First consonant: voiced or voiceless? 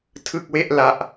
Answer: voiceless